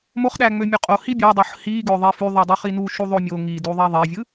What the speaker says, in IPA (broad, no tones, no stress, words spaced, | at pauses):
moχɗæŋ͡mø mʲøqʼo hibʲɑdˤoħ hiɡø ðˤefyðˤɯ dˤyχinu ʃuðˤomʲo ŋiduðˤi ðˤevʲɯ